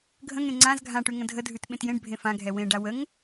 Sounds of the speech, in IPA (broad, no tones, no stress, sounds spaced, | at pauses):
ɡʱ ə̃ ŋ ẽ ŋ͡ǀ ã z ɡʱ ã ʈ ʉ ŋ ə̃ dʱ ə dʱ ʉ t ɓ ẽ t j ẽ ɖ bʱ ẽ f ã ɡʱ ɛ w ẽ ɖ a w ə ŋ